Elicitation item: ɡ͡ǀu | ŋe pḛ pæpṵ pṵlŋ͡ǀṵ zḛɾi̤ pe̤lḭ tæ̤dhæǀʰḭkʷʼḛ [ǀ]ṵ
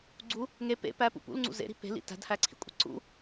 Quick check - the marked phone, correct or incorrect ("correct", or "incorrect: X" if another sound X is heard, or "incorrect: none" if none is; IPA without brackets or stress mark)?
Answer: correct